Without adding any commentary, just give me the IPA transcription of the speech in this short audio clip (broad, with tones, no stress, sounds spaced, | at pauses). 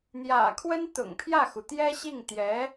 n̪ j ä̰˨˩ kʰ w ə˥ n t̪ ʊ̰˨˩ ŋ pʰ j ä˥˩ x u˩ t̪ j ɛ˥ ɕ i˥˩ ŋ t̪ j ɛ˧˥